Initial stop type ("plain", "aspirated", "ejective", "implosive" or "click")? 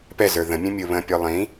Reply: plain